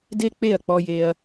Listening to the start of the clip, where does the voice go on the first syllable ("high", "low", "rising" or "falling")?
high